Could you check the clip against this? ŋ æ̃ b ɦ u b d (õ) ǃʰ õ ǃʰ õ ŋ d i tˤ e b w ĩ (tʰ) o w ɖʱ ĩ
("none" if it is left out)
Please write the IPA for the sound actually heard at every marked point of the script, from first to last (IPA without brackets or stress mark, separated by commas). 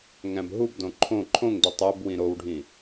õ, ɾ